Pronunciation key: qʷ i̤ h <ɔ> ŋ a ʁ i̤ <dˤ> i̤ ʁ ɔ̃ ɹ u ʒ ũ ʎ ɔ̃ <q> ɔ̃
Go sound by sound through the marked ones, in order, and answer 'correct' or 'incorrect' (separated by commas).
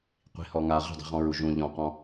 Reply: correct, correct, correct